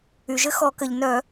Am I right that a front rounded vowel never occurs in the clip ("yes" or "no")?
no